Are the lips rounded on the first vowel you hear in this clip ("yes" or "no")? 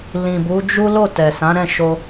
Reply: no